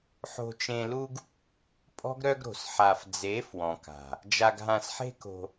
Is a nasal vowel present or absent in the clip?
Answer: present